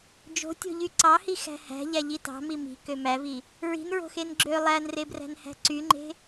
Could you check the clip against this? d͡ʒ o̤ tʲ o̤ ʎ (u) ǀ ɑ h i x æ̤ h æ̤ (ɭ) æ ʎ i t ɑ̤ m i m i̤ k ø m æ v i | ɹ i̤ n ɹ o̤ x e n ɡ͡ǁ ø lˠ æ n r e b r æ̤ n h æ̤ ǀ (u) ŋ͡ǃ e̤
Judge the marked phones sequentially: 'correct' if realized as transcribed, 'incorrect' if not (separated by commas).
incorrect, incorrect, incorrect